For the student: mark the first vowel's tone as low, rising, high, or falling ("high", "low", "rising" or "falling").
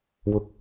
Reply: low